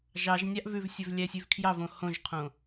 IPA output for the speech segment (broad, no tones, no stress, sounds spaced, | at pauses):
ʒ ɑ ʒ nʲ ɑ ʔ v ʉ v sʲ ɵ v lʲ æ sʲ ʉ v kʰ j ɑ v õ h õ ʒ qʰ õ